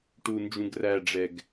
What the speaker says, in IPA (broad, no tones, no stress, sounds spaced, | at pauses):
ʈ u n d͡ʒ ũ ɡ r æ ɖ͡ʐ ɛ ɡ